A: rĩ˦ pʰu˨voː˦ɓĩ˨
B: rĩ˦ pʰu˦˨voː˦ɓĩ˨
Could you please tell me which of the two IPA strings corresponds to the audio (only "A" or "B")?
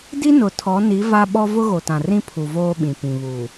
A